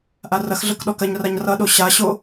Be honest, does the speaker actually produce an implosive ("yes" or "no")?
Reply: yes